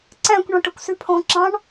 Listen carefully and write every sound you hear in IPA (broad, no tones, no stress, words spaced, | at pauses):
ǀæ̃kʷ ɳɔ̃ʈøkʷsypʰɔ̃ ǁɑ̃ɳ